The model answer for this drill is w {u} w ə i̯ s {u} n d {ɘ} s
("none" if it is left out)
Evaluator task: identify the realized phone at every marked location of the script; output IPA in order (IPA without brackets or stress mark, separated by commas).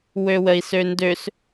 ø, ø, ø